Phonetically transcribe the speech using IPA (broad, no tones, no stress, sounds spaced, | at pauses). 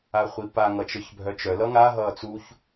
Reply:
a χʷ i p a ŋ ʌ t͡ʃ ə˞ ç bʱ œ t͡ʃ œ l ʌ ŋ a ɦ ʌː t͡s u ç